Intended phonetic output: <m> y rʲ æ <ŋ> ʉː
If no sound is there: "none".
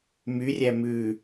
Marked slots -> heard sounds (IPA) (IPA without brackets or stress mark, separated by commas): m, m